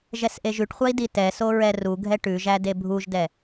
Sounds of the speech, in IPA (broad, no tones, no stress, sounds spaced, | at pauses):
ʒ ɛ s ʔ e ʒ ʉ ʈ χʷ a i̯ d i t ɛ s o ɹ ɛ r u ɡʱ ɛ ʈ ʉ ʒ æ d e bʱ u ʒ d ɛ